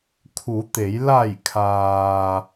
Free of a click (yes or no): yes